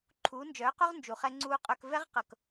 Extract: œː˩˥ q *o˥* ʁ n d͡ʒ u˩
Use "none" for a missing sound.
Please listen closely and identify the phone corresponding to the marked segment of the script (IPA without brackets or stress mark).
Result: o˥